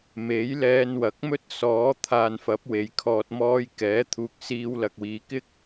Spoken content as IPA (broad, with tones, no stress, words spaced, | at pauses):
me˨˥j lɛː˧nwɐ˨˥k̚ mɵ˥t̚sɔː˨˥ t̪ʰaː˨nfɐ˨˥p̚ we˨˧jkʰɔː˧t̚ mɔː˧j kɛː˨˥ t̪ʰuː˨k̚ siː˧wlɐ˨k̚wiː˨˧ kɪ˥k̚